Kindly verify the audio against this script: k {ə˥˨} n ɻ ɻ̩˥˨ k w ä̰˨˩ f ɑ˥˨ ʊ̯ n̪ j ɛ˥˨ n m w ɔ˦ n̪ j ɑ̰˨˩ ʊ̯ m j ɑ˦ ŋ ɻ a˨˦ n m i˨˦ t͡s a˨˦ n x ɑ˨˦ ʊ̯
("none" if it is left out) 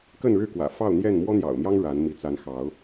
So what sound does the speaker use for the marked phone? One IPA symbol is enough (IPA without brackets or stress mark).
ə˥˨